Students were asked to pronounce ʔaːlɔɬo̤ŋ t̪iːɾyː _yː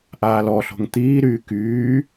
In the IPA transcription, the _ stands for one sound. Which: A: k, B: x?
A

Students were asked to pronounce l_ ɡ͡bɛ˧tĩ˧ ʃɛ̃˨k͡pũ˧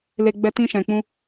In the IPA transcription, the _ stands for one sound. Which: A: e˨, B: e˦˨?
A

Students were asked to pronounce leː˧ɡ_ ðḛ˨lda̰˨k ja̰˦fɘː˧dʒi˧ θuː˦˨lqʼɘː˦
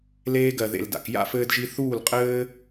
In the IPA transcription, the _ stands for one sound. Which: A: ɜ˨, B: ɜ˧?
A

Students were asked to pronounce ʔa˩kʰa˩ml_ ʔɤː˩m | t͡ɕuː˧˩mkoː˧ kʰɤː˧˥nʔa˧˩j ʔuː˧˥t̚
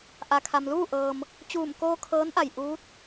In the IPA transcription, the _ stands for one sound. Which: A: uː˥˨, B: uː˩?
A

